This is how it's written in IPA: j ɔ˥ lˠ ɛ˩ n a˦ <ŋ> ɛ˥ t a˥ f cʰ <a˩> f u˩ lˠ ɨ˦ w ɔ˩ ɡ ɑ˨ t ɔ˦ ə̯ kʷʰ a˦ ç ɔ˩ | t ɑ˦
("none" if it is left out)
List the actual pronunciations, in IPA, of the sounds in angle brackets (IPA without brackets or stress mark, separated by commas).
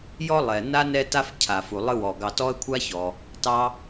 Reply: n, a˩